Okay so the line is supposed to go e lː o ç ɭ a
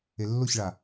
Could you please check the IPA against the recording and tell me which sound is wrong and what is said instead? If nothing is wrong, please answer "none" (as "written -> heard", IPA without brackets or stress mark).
none